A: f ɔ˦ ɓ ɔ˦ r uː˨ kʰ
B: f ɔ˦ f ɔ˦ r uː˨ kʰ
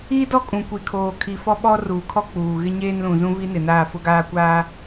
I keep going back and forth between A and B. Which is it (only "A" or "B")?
A